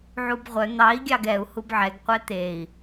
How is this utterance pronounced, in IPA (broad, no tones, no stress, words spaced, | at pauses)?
ʕubʁʷœ n̪ɑi̯ ɡʲɑɡɛu̯ hubʕɛɡ qʷɛt̪ei̯